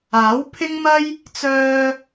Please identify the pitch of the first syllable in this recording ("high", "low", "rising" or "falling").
rising